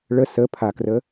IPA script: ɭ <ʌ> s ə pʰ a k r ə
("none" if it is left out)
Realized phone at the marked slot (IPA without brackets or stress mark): ə